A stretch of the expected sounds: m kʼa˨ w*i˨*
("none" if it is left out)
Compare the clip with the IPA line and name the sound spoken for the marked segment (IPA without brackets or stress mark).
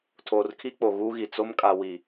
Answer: i˨